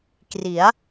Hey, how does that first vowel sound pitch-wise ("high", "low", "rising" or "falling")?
rising